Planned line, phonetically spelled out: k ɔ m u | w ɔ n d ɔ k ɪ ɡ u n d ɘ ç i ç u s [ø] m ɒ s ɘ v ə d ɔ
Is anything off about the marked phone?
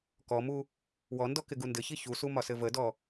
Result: yes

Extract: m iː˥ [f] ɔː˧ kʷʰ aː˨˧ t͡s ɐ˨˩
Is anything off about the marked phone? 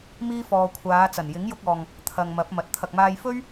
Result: no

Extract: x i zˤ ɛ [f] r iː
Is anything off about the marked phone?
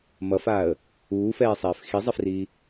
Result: no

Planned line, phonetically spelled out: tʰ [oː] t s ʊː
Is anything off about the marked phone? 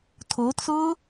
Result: no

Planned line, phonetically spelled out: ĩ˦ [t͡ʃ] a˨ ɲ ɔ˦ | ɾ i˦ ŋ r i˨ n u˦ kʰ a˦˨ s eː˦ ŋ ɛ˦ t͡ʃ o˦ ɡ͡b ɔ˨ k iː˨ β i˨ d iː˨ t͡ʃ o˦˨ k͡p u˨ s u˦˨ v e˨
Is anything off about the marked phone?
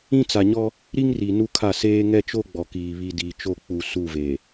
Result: yes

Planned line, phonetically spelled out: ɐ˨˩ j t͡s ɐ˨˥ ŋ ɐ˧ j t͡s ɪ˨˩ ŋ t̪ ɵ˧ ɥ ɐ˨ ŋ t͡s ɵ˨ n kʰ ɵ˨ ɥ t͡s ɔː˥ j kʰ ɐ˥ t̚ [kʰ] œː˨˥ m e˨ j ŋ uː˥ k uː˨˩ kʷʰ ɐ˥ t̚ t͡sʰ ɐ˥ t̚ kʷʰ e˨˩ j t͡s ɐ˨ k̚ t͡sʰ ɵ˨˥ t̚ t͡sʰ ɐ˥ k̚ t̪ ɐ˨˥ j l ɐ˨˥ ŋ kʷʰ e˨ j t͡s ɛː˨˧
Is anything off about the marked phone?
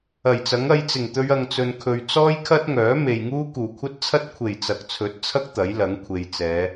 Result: yes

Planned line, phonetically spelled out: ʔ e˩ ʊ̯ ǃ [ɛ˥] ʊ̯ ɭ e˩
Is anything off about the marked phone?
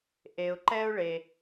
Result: no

